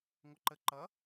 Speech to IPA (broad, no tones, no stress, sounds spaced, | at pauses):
ŋʷ ʌ ǃ ə ǃ ʌ